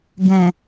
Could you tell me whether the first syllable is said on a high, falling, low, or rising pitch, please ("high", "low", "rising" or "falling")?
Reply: low